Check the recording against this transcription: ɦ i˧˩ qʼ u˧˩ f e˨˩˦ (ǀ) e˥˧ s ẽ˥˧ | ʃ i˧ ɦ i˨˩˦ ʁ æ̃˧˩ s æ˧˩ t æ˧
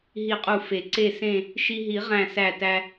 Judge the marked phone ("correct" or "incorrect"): correct